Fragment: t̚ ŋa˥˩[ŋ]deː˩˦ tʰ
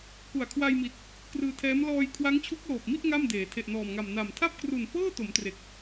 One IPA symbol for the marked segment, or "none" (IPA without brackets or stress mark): m